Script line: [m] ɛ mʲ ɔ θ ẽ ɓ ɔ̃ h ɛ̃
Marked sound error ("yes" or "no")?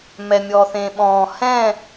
no